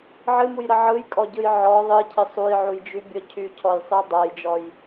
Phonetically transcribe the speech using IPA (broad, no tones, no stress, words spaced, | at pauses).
ʕɨmujɾə ʕɯjkʼɔɟɯj ʕɔ ðˤɨcʰɪ sˤujʕujd͡ʒybʲɔ cʰycʰɔjsˤɯ dˤajd͡ʒɔj